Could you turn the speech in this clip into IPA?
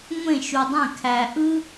ŋʷ ẽ˦˨ ʃ u˨ dˤ ẽ˦˨ kʰ æ˨ ʔ ɯ˦

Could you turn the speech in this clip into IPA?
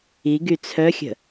i ɡ y t͡sʰ œ xʲ ə̤

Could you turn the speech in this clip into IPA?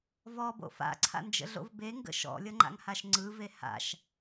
v ɔ b o̰ f a̰ ǀʰ a̰ n d͡ʒ ə̰ ɮ o̰ v b e ŋ ɡ ə̰ ʃ ɔ̰ lʲ ʌ ŋ͡ǃ a̰ ŋ h a ʃ ŋ͡ǀ ɯ v e h a̰ ʃ

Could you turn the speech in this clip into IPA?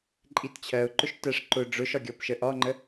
ǃʼ i t t͡ɕʰ ɜ ʊ̯ ǃ ʊ ʃ t ɜ ʂ ǃ ʊ ɖ͡ʐ ʊ ʃ ɒ ɡʲ ɔ p ʃ ə ʔ ɒ ŋ͡ǃ ə

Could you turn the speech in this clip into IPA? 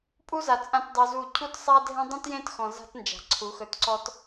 pʼ u˦ z a˨ t͡sʼ ã˧ t dˤ u˧ z u˦˨ cʰ u˦ t sˤ a˦ dʱ ẽ˦ dˤ ũ˦ t j ẽ˦ t x ɔ̃˨ z a̤˦ t n d͡ʒ a̤˨ ǀʰ u˨˦ x ɵ˧ t ǀ ɔ˦ t

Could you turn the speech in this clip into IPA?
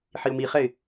ħ i ʊ̯ m i χ ɛ ɪ̯

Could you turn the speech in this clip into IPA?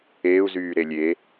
eː u̯ z yː ɾ e lʲ e

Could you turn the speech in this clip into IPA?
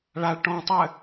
ɭ a ɭ ʈ ɔ̃ tˤ ɘ

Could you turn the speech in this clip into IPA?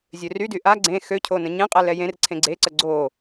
zʲ ø r y d y ʔ a ɡ͡ǀ ẽ x ø cʰ o n ə̃ ɲ ẽ qʼ ɛ l ɛ j ẽ r ǀʰ ẽ ɡ͡ǀ e ǀ ə ɡ͡ǀ o

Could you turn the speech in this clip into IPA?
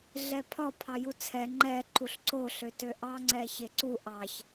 ɮ ɛ pʰ ɒ pʰ ɑ j u t͡sʰ ɛ ŋ͡ǃ ɛ ǃ u ɬ ǀ o ɬ ø t ø ʔ ɑ ŋ͡ǀ ɛ ç e ǀ u ʔ ɑ ç

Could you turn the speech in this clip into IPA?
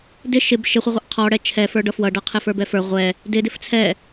d ɪ ʃ ɪ b ʃ ɪ χʷ ʌ ʁʷ ʌ ʔ qʰ ɔ ɽ ɛ t͡ʃʰ ɛ f ə˞ ɖ ʌ f w ʌ ɖ ʌ qʰ ɪ f ə˞ b ɛ f ə˞ ʁʷ ɛ | d ɪ d ɪ f t͡sʰ ɛ

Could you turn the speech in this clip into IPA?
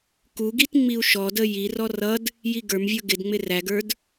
k u ɡ i t ŋ͡m i u̯ ʃ ɔ d ə j i r ɔ r ʌ d | j i ɡ ə˞ m vʲ ə˞ ɡ ɪ d ŋ͡m ɪ r æ ɡ ə˞ d

